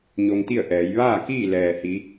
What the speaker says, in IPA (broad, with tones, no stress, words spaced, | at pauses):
ɲo˧ŋt̪i˥˨ə̯ʔɛː˩˧j ʋaː˥˨kiː˥˨ lɛː˩hi˩˧